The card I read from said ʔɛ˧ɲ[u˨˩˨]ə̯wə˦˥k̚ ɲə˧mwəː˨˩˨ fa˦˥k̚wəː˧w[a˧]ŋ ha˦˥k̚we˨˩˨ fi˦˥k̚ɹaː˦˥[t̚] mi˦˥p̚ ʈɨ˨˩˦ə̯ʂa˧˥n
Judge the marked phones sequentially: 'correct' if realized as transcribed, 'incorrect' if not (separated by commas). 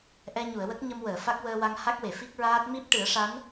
correct, correct, correct